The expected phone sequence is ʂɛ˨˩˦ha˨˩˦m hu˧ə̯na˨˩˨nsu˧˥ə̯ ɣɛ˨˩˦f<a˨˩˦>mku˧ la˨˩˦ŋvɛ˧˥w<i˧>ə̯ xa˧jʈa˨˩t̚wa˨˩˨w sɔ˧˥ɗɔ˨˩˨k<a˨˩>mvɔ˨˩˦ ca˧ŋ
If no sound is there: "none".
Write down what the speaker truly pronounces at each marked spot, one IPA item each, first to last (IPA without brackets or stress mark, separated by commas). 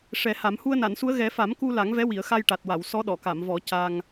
a˨˩˦, i˨˩˨, a˨˩˨